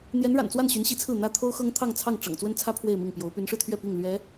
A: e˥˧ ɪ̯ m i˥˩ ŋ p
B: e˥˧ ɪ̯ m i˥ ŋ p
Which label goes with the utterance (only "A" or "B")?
A